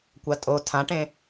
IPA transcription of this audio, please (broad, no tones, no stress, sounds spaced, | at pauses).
kʷ a tʼ o tʰ ã ʈ ẽ